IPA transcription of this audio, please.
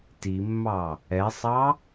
t i mː ɑ | ɛ sˤ ɑ

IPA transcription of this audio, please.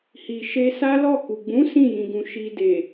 h i˨ ʃ e˧ s a˦ l ɔ˦˨ k u˨ ɡ͡b ũ˨˦ s ĩ˦˨ j ĩ˨ ɡ ũ˨ ʃ i˨ d e˨

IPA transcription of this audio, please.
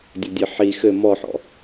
dʲ ɔ dʲ ɘ ħ i x ɘ m ɔ ħ ɔ̰

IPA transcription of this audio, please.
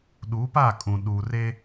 ɗ uː˨˦ p a˦˨ kʼ ũ˨ ɗ uː˨ r eː˦

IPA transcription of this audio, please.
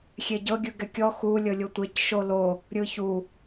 xʲ e ɟ ɤ ɡʲ ɯ ɡ ɛ kʲ ɔ x u lʲ ɤ lʲ o tʷ e c ʃ o l o | ɾʲ ɯ ç u

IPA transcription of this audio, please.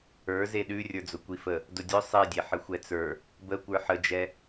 ə˞ z e ɗ ʉ rʲ ə˞ d͡z ʊ kʷ i f ə | d ʊ dʲ ʊ sˤ i dʲ e ħ ə xʷ ɛ t͡s ə˞ | b ə kʷ ə˞ ħ ə d͡ʒ ɛ

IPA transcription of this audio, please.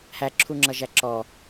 h æ ǁʰ u ŋ͡ǁ ʌ ʒ æ ǁ ɔ

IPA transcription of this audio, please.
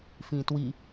f ĩː t w i

